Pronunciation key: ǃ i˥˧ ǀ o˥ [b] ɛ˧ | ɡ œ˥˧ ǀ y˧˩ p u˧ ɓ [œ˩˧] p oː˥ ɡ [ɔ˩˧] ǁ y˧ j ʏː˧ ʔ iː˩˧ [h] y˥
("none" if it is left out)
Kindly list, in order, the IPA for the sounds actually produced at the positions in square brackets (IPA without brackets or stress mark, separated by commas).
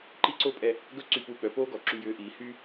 pʼ, œ˩˧, ɔ˩˧, h